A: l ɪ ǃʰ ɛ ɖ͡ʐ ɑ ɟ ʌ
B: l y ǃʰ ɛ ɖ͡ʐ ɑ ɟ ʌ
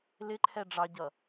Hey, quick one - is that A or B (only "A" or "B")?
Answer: A